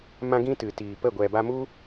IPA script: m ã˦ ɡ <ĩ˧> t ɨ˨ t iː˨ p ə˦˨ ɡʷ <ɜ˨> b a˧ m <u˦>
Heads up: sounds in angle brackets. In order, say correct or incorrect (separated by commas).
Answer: incorrect, incorrect, correct